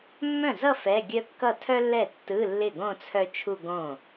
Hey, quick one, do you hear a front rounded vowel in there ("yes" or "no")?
yes